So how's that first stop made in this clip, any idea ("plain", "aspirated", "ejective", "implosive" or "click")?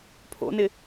aspirated